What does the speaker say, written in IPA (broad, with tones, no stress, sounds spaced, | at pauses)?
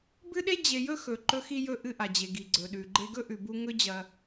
b ɨ˥ ɗ e˥ d͡ʑ e˧ j ɵ˥ x ɵ˩ ǃ ɵ˧ x i˧ j ɵ˧ ʔ ɨ˧ ʔ a˩ d͡ʑ e˩ ɡ i˩ ɡ͡ǀ ɵ˩ ɗ ʉ˩ ɡ͡ǃ e˧ ɡ ɵ˥ ʔ ʉ˩ b u˧ ŋ ɵ˥ d͡ʑ ɐ˧